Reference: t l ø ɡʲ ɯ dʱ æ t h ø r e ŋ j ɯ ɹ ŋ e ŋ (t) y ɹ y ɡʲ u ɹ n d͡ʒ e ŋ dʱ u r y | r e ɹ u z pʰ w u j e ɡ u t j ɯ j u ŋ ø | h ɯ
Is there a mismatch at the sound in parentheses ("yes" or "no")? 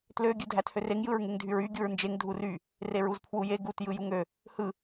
yes